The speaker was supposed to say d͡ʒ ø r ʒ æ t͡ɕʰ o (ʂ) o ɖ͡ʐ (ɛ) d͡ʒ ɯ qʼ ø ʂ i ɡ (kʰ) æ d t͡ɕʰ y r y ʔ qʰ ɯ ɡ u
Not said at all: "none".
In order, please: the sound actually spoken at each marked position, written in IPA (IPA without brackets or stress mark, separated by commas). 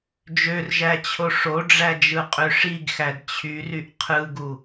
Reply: ʂ, æ, x